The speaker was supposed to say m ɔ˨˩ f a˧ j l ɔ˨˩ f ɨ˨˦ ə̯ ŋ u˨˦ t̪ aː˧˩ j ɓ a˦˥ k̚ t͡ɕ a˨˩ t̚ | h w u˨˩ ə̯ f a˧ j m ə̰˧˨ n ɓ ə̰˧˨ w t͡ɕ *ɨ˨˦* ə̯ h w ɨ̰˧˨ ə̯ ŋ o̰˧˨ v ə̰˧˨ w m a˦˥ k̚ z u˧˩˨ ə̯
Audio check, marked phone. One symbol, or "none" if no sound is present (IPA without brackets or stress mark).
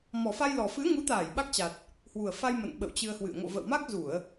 ɨ˧